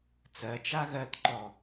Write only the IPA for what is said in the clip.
t͡sɜt͡ʃa ɣɜtǃɔ

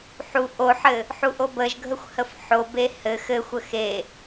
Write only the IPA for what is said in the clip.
ħu ʔoħɘ | ħuʔobəʒɡʱəxʷ həfħobe hɘ xɘxʷə xe

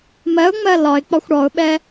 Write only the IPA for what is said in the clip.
mɜʊ̯ŋ͡mɜ lɒɪ̯k͡pɒxʷ ɽɔʊ̯ɓɛ

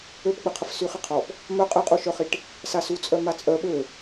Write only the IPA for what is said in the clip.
øpɡ͡bəqʰəf syχiqʰɔp | mœ qʼəqʼuʃœχiʈ | sasut͡sʼœ mat͡sʼœ ɓø

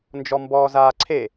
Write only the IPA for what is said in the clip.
nd͡ʒɔmbɔːzaːǀʰe

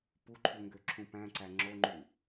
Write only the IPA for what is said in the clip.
puǃʰu ŋɡøǁʰũpæ̃ǀæ ŋ͡ǁoŋ͡ǃu

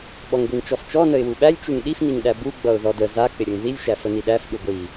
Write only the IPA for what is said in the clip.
ɓɔŋɡʷiŋt͡ʃɔft͡ʃɔ nəɪ̯wuɓælʲ t͡ʃuŋɗif niŋɗæbu ɡ͡bʌʊ̯ðɔdə za k͡pɪɾʲʌŋðilʲ ʃæfəniɗæf ɗuɡʷi

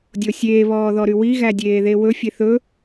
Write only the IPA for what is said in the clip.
dʲosʲeː βɔːðɔɾywi ɣædʲeːðewɵ fʲeθɵ

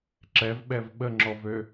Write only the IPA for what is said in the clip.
ǁɛvɓɛv ɓəŋ͡ǁɔvø

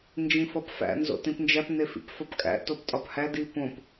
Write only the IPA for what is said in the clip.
nd͡ʒĩfɒpfæ̰ nzo̰tĩpnd͡ʒæp nefḭpfɒpkʼæ̰ toptʼɒphæ dipõp

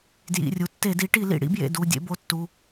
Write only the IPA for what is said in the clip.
djḭ˩˧˩rʲu˩˥tːe˧˩˧di˩˥ ʈi˧˩˧lḭ˩ ɽḭ˩˥bjḛ˩˧˩ du˩˧˩ dʲḛ˩˥bo˩˥tːu˩˧˩

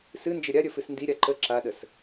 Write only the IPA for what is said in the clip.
sɨnd͡ʒə ɾʲaɾʲə fɨsndiɾʲa ǃə ǁaɗəs

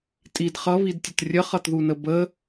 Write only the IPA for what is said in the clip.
tʼid χʌβidtʲət rʲəχʌtðunə bə

